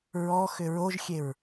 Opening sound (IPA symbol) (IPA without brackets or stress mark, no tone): ɹ